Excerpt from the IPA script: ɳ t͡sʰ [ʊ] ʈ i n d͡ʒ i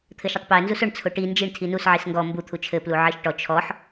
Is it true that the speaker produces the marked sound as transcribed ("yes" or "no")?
yes